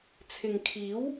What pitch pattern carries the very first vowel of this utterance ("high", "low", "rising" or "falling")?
low